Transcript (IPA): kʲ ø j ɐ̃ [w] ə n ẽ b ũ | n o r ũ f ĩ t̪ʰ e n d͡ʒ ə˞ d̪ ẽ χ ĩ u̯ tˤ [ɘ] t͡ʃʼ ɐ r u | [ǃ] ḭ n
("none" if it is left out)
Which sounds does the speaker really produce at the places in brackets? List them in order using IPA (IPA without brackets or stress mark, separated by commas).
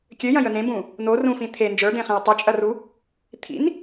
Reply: j, ɘ, t̪ʰ